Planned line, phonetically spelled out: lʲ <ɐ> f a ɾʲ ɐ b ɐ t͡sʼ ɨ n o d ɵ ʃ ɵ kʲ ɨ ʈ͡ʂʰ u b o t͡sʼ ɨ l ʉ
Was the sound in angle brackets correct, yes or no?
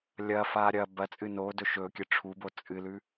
yes